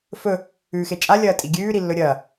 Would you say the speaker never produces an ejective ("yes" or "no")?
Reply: no